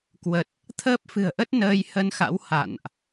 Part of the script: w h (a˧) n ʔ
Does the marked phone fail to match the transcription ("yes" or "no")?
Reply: yes